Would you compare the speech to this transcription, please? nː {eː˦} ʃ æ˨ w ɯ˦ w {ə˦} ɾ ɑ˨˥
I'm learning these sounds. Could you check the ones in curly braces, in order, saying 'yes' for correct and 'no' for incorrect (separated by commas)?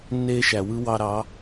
yes, no